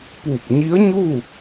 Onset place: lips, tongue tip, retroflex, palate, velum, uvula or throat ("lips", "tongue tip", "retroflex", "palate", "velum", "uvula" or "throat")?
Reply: lips